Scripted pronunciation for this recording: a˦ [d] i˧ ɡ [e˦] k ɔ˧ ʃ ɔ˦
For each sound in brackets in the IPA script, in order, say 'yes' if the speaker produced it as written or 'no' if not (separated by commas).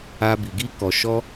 no, no